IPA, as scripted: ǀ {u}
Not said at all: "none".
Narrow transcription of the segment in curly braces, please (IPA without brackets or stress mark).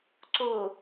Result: o